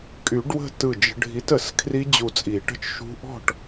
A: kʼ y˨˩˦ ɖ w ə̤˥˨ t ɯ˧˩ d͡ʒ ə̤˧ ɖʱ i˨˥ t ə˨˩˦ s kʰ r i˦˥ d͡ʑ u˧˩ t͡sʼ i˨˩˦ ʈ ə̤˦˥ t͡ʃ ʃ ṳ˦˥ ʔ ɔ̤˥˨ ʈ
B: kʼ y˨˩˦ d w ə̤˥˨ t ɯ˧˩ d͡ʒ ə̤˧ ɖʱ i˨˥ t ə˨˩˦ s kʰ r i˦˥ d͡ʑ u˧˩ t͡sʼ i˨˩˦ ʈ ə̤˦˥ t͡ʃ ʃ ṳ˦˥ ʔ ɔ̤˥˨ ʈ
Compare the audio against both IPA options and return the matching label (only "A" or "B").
A